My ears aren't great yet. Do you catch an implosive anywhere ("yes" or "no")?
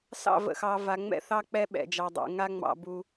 yes